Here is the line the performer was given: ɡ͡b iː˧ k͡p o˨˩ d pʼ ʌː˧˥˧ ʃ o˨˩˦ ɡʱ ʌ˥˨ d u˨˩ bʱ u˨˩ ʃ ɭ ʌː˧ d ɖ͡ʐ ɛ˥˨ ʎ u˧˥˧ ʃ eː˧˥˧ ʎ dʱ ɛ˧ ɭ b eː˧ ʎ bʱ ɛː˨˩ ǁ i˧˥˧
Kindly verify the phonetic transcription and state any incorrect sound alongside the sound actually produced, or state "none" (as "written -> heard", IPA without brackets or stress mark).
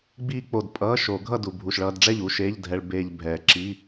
none